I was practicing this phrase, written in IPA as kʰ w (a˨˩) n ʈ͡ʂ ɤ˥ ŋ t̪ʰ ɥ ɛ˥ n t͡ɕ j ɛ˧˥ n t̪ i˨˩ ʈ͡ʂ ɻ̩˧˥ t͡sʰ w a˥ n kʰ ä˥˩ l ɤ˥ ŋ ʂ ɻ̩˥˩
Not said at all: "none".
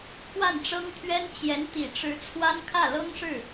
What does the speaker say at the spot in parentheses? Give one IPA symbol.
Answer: a˥˩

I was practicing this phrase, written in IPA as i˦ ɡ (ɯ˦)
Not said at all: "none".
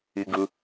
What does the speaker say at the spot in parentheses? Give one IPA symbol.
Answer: ɯ˦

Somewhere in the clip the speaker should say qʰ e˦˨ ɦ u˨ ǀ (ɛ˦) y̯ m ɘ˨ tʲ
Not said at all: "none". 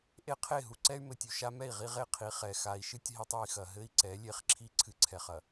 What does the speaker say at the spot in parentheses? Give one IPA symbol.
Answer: ɛ˦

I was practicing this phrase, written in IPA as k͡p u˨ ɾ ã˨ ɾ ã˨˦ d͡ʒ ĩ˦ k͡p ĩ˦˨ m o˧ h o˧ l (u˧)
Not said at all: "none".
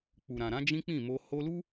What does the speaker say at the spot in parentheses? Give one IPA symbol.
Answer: u˦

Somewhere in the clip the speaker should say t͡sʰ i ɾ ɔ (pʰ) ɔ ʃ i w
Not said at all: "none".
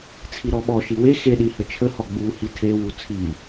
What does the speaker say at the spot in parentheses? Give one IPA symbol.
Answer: ɓ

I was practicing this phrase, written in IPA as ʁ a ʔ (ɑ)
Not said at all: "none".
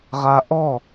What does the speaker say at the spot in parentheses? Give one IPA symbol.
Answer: ɔ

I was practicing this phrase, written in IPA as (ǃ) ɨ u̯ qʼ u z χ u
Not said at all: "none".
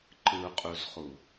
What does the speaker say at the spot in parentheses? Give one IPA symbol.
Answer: ǃ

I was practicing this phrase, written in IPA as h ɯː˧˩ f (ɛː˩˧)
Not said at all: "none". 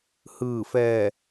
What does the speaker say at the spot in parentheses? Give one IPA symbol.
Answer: ɛː˧˩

